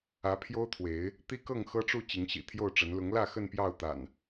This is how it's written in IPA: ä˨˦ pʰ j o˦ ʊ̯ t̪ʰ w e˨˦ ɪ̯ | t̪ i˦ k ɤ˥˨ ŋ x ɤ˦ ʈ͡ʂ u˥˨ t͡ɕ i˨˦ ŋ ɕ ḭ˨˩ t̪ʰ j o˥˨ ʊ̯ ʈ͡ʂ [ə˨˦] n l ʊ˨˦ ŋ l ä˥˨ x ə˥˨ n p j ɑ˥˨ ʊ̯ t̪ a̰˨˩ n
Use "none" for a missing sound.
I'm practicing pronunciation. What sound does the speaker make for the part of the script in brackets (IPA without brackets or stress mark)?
ə˨˦